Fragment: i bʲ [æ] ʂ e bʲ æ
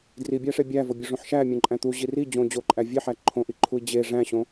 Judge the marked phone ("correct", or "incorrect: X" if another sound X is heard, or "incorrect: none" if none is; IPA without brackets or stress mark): correct